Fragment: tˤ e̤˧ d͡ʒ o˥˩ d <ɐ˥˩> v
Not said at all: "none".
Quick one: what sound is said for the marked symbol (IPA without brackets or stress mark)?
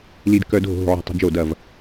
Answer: ɐ˥˩